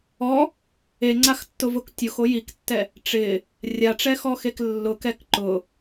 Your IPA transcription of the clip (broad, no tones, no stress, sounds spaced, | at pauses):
ɔ | e ŋ͡ǀ a x tː ʊ v ʊ k tʲ ʊ x o j i k tː ɛ | ʈ͡ʂ ɪ | rʲ a ʈ͡ʂ ɛ x ɔ x e k lː ʊ k ɛ k ǃ ʊ